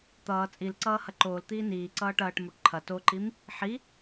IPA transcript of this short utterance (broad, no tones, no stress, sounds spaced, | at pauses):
t̪ ʌː t͡sʼ i l ǀ ʌː h ɐ ǃ oː l t̪ iː n iː ǀ ʌː ʈ ɐː ʈ m o ʈ ǃʰ ɐ t o ǃ i m | ħ i